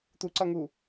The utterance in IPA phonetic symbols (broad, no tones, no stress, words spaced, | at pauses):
t̪uǀʌŋu